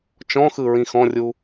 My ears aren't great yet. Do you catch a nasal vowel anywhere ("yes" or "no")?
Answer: yes